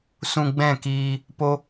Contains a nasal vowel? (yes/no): yes